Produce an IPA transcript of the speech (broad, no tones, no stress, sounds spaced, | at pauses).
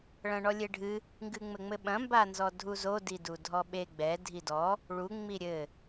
ɭ ɐ̃ ɳ ɔ lʲ e ɖʱ ɨ | ŋ ɡ ɨ ŋ͡m ɘ ŋ͡m ɘ ɓ ɐ̃ m b a n z ɔ dʱ u z o d i d u dʱ ɔ ɓ e ɡ͡b ɛ dʱ i d ɔ | ɭ u ŋ͡m i ɾʲ ɘ